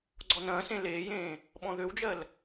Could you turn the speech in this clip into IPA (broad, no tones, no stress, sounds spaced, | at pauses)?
ɡ͡ǀ ɔ n ɐ̃ː s ẽ l eː j ẽː | ɓ ɔ̃ ð ø w d͡ʒ ɜ l